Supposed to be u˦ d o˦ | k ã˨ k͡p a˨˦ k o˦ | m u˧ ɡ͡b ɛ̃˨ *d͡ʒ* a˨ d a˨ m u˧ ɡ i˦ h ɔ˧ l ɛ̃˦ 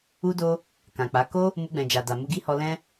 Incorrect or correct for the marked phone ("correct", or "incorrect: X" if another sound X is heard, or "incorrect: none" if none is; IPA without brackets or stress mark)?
correct